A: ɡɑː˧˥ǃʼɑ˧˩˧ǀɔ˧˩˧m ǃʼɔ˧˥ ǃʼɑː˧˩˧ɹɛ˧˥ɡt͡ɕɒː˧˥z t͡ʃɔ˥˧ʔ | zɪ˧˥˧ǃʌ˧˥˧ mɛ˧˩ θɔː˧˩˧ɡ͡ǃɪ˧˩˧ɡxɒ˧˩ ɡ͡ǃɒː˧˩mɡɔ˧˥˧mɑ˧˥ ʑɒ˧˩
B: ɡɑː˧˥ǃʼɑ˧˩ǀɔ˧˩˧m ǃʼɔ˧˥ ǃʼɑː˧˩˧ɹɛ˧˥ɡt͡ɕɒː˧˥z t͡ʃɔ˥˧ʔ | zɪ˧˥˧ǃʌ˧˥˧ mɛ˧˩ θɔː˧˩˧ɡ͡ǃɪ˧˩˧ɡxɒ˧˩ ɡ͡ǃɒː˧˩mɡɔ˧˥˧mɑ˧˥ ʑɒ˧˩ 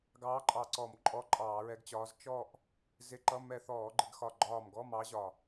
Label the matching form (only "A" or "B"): B